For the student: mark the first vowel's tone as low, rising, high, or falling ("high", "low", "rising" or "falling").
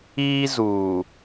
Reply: high